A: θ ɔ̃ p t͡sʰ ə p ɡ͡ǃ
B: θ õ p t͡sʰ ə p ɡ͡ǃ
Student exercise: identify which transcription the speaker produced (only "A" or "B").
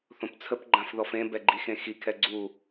B